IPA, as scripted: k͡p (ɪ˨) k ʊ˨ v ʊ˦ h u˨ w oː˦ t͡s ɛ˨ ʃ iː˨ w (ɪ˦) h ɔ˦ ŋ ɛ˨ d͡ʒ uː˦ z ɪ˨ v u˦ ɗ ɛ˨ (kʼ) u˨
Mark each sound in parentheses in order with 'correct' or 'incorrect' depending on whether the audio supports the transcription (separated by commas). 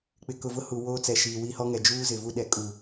correct, incorrect, correct